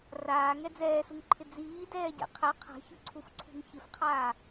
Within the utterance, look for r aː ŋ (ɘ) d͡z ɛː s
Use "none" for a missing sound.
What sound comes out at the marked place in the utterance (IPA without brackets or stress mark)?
ɛ